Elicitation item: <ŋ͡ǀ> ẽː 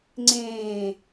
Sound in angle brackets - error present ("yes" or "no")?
no